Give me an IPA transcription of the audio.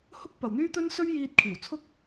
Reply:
h ʊ˥ k̚ p ɐ˨ w n̪ yː˥ t̪ ɵ˥ n s ɵ˥ ɥ j iː˧ t̚ kʰ iː˨˩ w t͡sʰ ʊ˥ k̚

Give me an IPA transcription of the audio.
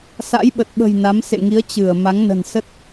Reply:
s a̰˧˥ j ɓ ə˨˩ t̚ ɓ ə̤˨˩ j n a˨˦ m s ḛ˧˨ ŋ i˨˦ ə̯ t͡ɕ ɨ˧˩ ə̯ m a˨˦ ŋ n ə̤˨˩ n s ə˦˥ t̚

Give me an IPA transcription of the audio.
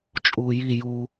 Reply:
t͡ʃʼ uː j i j u

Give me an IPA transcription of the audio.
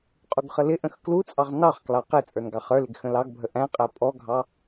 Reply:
qʼ u ɡ χ ə l ɪ ʔ ə̃ x k l u t͡sʼ ɑ ʁ n ɑ χ k l ɑ q ɪ t͡sʼ ə˞ n ɡ ɑ χ ə˞ l ɪ ɡ x ə̃ l ɑ ɡ bʱ ə ʔ æ̃ qʼ æ pʼ ɔ ɡʱ ɑ

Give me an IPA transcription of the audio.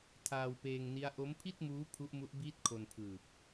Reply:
tʰ aː˧ w p eː˧ ŋ n i˦˥ a̯ ʔ o˦˥ m pʰ i˥˩ t̚ m uː˦˥ pʰ u˦˥ ʔ m u˦˥ ʔ b iː˥˩ t̚ kʰ o˧ n pʰ ɯː˨˩ p̚

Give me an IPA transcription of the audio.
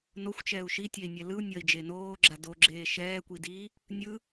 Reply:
n o xʷ t͡ʃ ɛː u̯ ʃ i tʲ ɛ i̯ nʲ ɛ l ɯ u̯ nʲ ʌ i̯ d͡ʒ e n oː ɡ͡ǁ a d o ɡ͡ǁ eː ʃ ɛː kʷ i d i | nʲ ɯ

